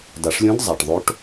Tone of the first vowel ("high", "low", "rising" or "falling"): low